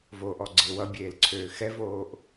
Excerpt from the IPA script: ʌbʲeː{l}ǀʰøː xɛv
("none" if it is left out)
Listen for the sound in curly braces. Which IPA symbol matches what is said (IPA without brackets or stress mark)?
l